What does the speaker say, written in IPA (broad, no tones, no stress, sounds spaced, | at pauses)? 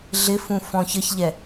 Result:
ɮ ɪ f ũ f ɔ̃ ç ə ç ʎ ɛ